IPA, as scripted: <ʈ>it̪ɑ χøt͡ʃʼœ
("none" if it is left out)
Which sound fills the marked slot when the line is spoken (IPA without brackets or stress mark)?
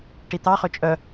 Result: ʈ